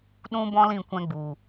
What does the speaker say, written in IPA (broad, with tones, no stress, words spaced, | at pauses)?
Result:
ɗũ˦bɔ̃˦lĩ˦˨ kʷɛ̃˦ɡ͡bu˨